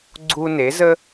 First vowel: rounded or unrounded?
rounded